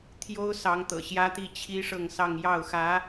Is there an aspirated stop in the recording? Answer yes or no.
yes